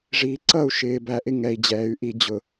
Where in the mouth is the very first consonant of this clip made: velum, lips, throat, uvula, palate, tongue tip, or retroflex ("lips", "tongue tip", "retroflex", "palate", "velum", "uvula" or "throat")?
retroflex